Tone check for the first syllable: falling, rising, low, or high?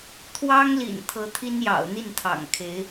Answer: high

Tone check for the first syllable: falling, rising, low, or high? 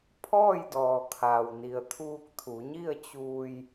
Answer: falling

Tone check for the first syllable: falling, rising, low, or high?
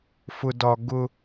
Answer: high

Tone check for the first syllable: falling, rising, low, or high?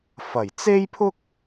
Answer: low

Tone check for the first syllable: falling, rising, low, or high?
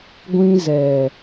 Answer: high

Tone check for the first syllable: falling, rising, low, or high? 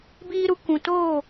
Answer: high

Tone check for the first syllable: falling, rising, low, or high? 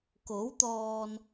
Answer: rising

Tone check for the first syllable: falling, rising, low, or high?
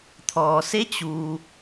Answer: low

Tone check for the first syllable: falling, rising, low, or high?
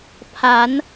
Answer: rising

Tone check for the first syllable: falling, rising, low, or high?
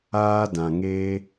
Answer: high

